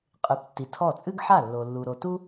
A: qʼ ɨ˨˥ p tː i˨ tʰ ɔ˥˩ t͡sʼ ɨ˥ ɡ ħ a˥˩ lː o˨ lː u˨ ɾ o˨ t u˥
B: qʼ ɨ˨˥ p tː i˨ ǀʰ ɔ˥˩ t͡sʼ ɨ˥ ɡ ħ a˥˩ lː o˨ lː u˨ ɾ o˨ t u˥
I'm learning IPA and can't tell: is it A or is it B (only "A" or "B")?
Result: A